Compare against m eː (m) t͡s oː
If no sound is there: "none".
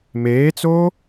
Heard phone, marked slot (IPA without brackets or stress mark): none